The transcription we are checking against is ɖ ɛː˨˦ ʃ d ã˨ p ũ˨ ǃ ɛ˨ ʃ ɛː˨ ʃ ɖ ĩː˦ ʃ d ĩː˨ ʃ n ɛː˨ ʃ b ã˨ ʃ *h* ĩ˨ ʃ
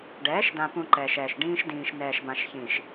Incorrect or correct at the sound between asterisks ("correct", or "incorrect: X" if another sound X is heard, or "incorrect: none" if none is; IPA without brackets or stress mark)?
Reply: incorrect: ç